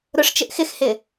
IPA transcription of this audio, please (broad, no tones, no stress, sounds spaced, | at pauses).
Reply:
ɾ ʊ ʂ t͡ʃ ɪ ʔ x ɪ x h ɪ